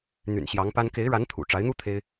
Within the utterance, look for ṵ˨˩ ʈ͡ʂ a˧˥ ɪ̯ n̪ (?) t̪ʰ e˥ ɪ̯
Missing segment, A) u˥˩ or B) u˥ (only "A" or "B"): B